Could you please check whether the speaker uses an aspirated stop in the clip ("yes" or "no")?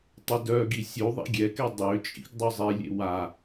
no